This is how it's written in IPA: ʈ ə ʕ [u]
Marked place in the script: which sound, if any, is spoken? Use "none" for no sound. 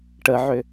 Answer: ʏ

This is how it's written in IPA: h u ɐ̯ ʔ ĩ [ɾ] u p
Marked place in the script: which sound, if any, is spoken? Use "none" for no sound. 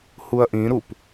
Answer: ɾ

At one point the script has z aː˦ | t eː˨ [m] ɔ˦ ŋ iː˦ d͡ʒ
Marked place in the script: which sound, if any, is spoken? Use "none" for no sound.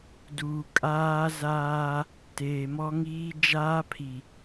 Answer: m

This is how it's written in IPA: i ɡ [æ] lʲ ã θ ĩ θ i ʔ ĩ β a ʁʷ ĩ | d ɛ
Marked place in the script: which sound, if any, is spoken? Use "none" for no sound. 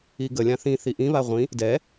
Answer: ə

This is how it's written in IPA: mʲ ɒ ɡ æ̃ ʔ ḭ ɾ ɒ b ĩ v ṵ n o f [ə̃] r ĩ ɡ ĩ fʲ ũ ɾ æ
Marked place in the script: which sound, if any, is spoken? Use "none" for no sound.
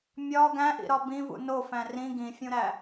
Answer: æ̃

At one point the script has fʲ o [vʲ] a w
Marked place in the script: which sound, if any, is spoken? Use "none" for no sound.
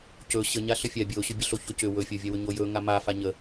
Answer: vʲ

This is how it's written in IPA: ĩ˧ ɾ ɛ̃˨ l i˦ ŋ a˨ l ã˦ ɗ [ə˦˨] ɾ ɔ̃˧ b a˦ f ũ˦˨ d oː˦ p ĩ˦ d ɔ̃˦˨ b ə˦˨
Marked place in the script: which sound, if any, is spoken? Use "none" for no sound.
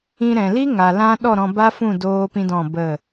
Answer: ɔ˦˨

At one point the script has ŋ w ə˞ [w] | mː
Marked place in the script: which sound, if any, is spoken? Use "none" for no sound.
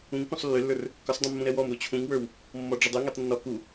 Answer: w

